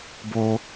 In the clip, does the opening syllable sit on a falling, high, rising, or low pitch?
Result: high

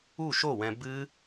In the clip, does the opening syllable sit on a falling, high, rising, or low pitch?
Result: falling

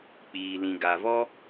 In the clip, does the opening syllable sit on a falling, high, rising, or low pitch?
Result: low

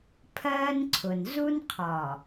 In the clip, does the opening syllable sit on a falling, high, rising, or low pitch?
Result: high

